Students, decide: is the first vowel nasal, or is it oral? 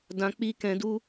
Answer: nasal